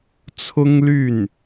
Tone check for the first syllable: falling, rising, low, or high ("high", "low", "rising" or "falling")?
high